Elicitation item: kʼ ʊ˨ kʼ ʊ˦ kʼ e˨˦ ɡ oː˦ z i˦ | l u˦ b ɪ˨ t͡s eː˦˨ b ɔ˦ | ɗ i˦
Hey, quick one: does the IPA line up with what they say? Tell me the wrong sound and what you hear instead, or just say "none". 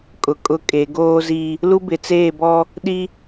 none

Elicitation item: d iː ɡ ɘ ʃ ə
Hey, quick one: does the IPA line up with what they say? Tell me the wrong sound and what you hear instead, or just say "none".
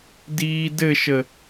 ɡ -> d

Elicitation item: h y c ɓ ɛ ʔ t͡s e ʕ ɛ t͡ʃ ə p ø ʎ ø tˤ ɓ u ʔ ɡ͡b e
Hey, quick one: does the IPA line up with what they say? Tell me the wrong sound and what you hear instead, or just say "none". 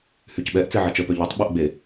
none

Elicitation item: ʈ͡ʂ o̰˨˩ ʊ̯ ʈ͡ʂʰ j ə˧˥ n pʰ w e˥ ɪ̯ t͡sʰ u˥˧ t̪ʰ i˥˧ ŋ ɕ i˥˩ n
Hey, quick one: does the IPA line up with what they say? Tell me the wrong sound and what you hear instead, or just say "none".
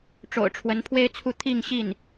j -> w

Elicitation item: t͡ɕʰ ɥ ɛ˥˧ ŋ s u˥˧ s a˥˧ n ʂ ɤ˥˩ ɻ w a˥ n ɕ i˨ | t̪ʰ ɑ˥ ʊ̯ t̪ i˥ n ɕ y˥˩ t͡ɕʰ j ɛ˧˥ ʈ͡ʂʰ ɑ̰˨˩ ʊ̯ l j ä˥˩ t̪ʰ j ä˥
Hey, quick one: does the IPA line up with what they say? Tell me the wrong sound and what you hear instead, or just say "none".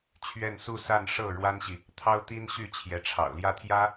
ŋ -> n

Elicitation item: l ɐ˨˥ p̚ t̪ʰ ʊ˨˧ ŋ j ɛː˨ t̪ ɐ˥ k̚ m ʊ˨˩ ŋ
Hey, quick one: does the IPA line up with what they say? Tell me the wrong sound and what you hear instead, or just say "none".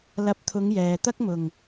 none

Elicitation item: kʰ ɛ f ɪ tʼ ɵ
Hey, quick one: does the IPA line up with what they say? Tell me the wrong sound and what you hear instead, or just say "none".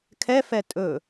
ɪ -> ɛ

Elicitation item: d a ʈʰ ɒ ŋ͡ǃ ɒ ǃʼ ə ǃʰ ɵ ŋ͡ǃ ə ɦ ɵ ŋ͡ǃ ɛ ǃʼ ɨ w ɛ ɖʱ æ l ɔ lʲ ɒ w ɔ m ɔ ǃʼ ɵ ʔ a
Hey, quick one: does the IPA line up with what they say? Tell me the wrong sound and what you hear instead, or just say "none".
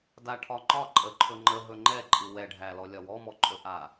none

